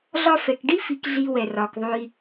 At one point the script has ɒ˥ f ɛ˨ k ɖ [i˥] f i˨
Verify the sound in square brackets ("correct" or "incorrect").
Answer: correct